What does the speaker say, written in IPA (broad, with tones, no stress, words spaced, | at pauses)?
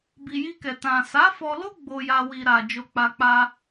bi˨ji˧kɛ˨ tã˨sa˨˦fɔ˧ lo˦ ɡ͡bo˧ja˧ wi˧ ɾa˧ d͡ʒo˧k͡pa˧ k͡pa˧